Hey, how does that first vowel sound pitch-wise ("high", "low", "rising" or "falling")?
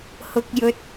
low